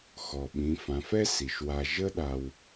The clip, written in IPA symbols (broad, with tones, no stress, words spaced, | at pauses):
xɔ˩ɓĩ˩˧ fã˩˧fɛ˥ si˩ʃwa˧ ʒə˥ɗa˧w